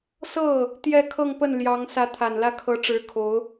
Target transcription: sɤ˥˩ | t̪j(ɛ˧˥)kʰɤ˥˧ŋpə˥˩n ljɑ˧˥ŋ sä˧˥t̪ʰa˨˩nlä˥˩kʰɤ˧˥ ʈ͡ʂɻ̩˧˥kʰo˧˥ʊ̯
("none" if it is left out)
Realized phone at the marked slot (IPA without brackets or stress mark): ɛ˥˧